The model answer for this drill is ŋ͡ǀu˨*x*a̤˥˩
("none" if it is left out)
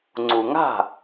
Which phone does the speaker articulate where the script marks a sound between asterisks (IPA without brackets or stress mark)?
ŋ